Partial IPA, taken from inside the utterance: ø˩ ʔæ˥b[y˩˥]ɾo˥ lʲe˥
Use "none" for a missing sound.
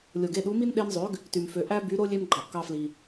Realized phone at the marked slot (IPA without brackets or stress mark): y˩˥